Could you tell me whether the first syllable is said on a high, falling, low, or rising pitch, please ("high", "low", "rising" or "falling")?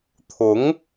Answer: rising